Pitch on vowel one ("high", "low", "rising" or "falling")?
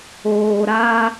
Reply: low